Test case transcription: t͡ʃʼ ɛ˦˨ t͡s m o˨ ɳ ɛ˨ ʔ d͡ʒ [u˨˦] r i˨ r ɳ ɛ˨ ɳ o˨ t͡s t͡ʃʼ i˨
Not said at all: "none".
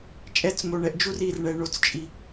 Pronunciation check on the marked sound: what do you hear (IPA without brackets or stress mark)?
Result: u˦